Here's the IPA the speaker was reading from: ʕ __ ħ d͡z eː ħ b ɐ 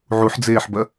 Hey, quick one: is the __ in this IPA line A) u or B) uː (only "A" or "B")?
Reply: A